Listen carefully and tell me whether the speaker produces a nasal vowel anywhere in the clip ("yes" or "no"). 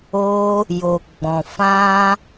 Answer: yes